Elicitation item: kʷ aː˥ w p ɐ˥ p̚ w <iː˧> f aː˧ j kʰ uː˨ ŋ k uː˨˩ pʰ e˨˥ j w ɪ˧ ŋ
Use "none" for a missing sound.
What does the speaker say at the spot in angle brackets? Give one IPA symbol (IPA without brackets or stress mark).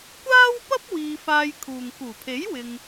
iː˧